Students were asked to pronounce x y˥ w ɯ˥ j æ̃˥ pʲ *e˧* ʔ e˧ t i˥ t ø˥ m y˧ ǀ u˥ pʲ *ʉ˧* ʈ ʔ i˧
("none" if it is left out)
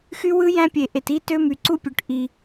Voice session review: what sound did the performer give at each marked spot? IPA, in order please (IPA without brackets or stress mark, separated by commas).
e˧, ø˧